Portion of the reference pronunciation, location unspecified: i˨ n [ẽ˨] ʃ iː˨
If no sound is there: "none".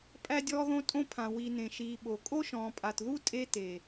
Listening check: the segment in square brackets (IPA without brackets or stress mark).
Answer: ẽ˨